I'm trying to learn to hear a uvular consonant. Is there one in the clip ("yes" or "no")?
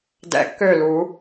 no